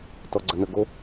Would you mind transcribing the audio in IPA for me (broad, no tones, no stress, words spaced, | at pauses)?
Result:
tɔɡ͡ǀɐnəɡo